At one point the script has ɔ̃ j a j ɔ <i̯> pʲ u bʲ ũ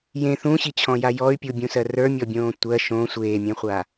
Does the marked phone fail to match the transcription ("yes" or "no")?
yes